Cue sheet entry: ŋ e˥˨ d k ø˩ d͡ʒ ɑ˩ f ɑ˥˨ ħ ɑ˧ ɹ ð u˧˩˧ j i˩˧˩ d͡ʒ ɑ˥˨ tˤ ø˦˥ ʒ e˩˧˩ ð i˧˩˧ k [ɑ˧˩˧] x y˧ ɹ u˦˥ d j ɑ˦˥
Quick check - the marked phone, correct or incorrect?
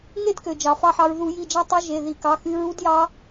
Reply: incorrect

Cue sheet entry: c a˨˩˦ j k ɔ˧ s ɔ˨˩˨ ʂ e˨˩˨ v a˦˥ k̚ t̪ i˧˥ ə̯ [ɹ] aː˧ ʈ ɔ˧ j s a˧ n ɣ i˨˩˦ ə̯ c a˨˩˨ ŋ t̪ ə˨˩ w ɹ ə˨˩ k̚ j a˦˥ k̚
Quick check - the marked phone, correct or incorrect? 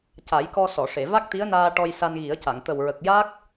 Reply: incorrect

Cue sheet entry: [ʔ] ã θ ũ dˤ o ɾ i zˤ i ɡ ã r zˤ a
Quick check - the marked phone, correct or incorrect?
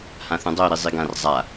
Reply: incorrect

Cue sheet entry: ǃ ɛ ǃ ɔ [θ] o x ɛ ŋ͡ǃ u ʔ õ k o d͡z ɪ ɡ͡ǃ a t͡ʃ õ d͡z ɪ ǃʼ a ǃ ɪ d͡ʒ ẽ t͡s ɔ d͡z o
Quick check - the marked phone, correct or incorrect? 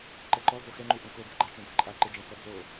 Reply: incorrect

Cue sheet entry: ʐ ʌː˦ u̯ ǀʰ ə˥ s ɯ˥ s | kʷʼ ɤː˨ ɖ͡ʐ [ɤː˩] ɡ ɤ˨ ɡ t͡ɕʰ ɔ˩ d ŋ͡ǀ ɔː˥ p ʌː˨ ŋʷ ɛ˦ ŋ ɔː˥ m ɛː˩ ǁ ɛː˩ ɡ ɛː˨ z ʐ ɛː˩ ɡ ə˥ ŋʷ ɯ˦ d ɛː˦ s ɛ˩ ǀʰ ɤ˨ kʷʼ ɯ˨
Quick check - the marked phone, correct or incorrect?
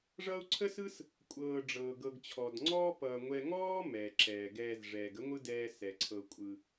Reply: correct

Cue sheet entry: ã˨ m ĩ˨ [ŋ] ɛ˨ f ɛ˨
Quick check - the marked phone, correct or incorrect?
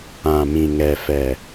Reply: correct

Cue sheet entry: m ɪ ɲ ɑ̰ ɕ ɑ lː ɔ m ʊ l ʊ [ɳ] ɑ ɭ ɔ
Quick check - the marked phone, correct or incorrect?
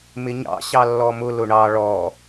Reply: correct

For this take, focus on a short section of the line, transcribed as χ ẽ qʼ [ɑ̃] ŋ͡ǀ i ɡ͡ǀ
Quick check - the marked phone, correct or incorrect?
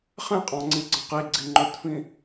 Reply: correct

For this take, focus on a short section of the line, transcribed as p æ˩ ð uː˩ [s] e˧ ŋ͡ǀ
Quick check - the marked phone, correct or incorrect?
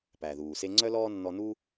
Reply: correct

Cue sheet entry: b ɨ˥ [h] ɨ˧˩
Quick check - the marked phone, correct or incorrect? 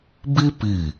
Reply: incorrect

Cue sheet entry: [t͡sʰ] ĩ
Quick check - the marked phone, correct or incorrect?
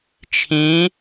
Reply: incorrect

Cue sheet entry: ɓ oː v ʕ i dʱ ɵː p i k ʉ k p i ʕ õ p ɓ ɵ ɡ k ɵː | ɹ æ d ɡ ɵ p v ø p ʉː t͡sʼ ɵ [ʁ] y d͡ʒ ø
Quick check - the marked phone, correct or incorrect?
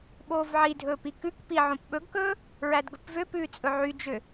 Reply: incorrect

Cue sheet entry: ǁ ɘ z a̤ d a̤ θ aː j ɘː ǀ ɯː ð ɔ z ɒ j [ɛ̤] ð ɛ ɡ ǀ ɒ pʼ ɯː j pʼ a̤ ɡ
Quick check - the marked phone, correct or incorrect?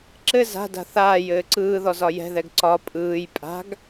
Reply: correct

